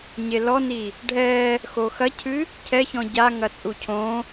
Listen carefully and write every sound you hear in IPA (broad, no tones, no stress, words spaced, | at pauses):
ɲelɔni | ɖʱɛ | xoxɐcʰɨ | cʰɛçɔ̃ ɟaŋɐt͡sʼu cʰõ